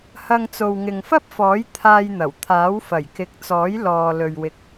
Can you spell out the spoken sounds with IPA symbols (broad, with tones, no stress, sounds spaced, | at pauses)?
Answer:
h ɐ˧ ŋ t͡s o˨ w ŋ ɪ˨ ŋ f ɐ˥ p̚ f ɔː˨˥ j t̪ʰ aː˧ j n̪ ɐ˨˩ w t̪ʰ aː˨˥ w f ɐ˨˩ j k ɪ˨˥ k̚ t͡s ɔː˨˥ j l ɔː˧ l ɵ˨ ɥ w ɪ˨ k̚